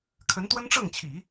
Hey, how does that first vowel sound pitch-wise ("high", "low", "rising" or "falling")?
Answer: rising